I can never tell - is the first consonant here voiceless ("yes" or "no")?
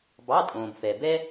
no